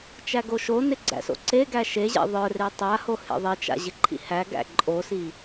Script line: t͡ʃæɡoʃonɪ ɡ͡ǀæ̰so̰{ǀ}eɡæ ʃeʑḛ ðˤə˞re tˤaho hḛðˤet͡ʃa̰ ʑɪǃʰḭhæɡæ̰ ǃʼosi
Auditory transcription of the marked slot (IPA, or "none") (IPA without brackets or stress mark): ǀ